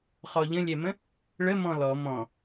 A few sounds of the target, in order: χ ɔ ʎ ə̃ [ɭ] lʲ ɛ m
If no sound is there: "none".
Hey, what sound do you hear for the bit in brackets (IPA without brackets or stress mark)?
none